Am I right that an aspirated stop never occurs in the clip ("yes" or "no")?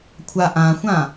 no